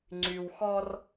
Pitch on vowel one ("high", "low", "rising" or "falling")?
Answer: low